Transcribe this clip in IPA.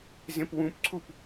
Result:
zẽpwũpǀʰup

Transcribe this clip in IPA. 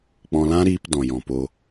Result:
k͡pɔ̃˧lã˦ɾiː˧p dɔ̃˨jɔ̃˨po˧

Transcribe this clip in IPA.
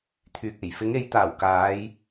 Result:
t̪ʰyː˨k̚e˨˩j fɪ˨˧ŋe˨˧jt̪aː˨˩w kaː˨˧j

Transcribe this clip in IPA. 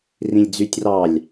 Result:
rĩlʲd͡zytʲ rɑlʲ

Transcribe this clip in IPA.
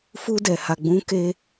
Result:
fu˧dɛ˨ha˨ ɡ͡bũ˨˦ke˧

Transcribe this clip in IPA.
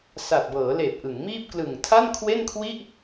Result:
sa˨˩t̚bɤː˩˦leː˨˩p̚ ʔɯ˩˦ŋmiː˥˩p̚ klɯ˨˩ŋtʰa˥˩nkʰwe˥˩nkʰwi˥˩ʔ

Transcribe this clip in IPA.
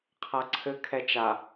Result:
qʰaǀʰɘ kʰɛt͡ʃa

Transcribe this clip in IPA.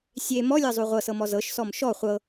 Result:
sʲe mɔlʲɤzˤu ʁʷɤsɤmɔ zɤʃsɔm ʃɔ χʷɤ

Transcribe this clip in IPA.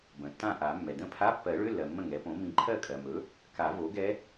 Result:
bə̃˩tːã˥˩ʔa˨˩˦ mːɛ˩də̃˥˩ pʰa˧˥˧pːɜ˨˩˦ɭø˧˥˧lːɜ˩ mːə̃˥˩ŋɛ˩˥põ˩˥ mĩ˨˩˦ǃʰɜ˥˩kʼɜ˩mɵ˩˥ | ka˨˩˦ vo˩˥ɡɛ˧˥

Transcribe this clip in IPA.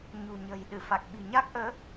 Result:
ɲṳ˨˩ɲə̤˨˩j ɗɨ˧˩fa˨˩k̚ɓi̤˨˩ ɲa˦˥k̚ʔəː˨˦

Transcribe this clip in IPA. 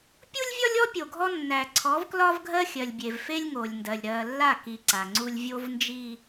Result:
pʲu˦lʲvʲɒ˦lʲɔ˦ pʲo˨ɡʱɔ˦ nːæ˨ǀʰɔ˨˦vklɒ˦vɡʱɜ˦ xʲɜ˨lʲbʲe˨vfe˦lʲ ŋo˨lʲndɜ˨lʲ ɾɜ˨ lːa˦˨ki˨ ǀa˨ŋ͡ǀu˦lʲ vʲo˦vnd͡ʒi˦

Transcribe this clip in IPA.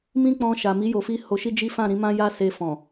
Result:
mĩ˦k͡pɔ̃˧ ʃa˨mi˨˦ jo˧fi˦ ho˧ʃi˦d͡ʒi˦ fã˦˨ɾĩ˨˦ mã˦ja˦se˧ fɔ̃˨

